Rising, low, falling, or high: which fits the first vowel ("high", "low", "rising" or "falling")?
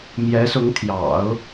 rising